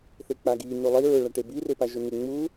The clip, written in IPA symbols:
θ e k͡p a ɡ i n u lˠ i ɹ ʊ ɭ a ʈ e b i r e p a ʒ ʊ n ɪ ŋ͡m u

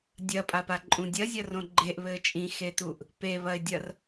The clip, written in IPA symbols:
dʲ ɐ pʼ a p a ǃʼ ũ dʲ ɐ zʲ ɐ r õ ɡ͡ǃ e ʔ β ɘː t͡ʃʼ ĩ x e t u ʔ | p e β ɐ ɪ̯ dʲ ɐ r

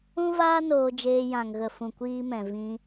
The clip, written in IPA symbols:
ũ˦ v aː˦ n oː˧ d͡ʒ eː˧ j ã˨ ŋ ɣ ə˨ f ũ˨ kʷ iː˧ m ɛ̃˨ v ĩ˧

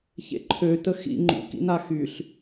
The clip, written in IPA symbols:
ç ḛ ǃʰ ø t ə x ḭ ŋ͡ǃ ṵ k ḭ n a x y ɬ

